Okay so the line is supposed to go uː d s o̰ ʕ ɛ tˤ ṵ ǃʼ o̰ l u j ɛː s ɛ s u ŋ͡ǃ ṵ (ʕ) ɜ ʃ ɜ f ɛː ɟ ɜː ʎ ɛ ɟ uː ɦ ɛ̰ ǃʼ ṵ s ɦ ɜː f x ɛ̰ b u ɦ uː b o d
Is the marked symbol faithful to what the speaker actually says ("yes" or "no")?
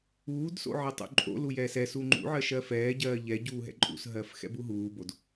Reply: yes